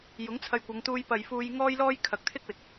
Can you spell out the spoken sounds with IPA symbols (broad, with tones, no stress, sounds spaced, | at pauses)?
j ʊ˨˥ ŋ t͡sʰ ɐ˧ j kʷ ɐ˨˧ ŋ t̪ uː˧ j p ɐ˨ j f uː˧ j ŋ ɔː˥ j l ɔː˥ j kʰ ɐ˨˥ k̚ t̪ʰ ɪ˥ k̚ w ɪ˨ k̚